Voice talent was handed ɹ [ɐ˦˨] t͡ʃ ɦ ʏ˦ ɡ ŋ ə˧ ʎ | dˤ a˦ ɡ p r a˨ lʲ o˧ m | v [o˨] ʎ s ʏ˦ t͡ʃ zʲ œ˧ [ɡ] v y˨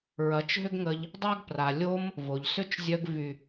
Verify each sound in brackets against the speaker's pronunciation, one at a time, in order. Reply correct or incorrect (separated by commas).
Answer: incorrect, correct, correct